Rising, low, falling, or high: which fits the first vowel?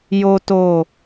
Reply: high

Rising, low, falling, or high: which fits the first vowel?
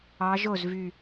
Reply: rising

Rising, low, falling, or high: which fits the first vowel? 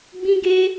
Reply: high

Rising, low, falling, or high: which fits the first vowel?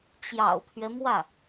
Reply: low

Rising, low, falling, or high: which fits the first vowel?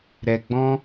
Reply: low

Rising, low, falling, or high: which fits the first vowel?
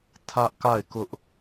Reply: high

